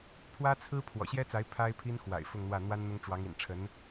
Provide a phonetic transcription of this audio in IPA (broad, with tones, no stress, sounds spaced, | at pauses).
pʰ w ä˥ t͡sʰ ɹ̩˥ pʰ w ɔ̰˨˩ ɕ j ɛ˥ t͡s a˧˥ ɪ̯ pʰ a˥ ɪ̯ pʰ i˥ n x w a̰˨˩ ɪ̯ f ʊ˥˧ ŋ n̪ w ä˥˩ n̪ w a˥ n n̪ ʊ˥ ŋ ʈ͡ʂ w ɑ˧˥ ŋ ḭ˨˩ n ʈ͡ʂʰ ə˧˥ n